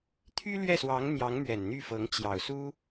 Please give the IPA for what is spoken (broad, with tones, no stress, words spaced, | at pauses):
t̪ʰy˥lɥɛ˥˩swɑ˧˥ŋ n̪jɑ˧˥ŋmɥɛ˨˩nn̪y˥˩fɤ˧˥ŋ t͡ɕjɑ˨˩ʊ̯su˥